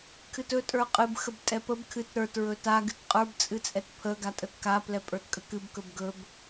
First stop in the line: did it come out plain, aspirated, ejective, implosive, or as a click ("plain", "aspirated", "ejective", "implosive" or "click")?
aspirated